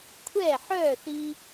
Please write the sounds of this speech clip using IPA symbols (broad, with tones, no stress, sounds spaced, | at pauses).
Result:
kʷʰ ɛ˦˨ ħ œ˦˨ θ i˧